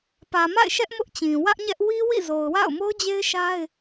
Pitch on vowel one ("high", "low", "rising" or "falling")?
low